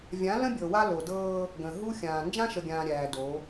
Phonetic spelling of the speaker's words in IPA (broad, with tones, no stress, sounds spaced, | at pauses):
vʲ ã˨˦ l ə̃˦ bʲ ɤ˨ w a˦ l o˨ d ɤː˦ | ɡ ə̃˨ ɦ u˦ xʲ ãː˨ n d͡ʒ ã˦ ʃ ə˨ ɡʲ ãː˨ ɾʲ æː˨ d o˨˦